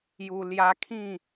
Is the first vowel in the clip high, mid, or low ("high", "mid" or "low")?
high